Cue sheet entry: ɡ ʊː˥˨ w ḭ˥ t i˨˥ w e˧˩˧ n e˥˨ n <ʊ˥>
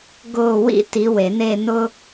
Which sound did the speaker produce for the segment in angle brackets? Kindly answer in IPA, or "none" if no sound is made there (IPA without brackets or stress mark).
ʊ˥